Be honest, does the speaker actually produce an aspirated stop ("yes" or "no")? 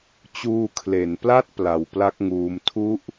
yes